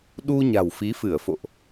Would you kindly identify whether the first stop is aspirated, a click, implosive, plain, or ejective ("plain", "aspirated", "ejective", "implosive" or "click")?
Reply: implosive